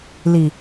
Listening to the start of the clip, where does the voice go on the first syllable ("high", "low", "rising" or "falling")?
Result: low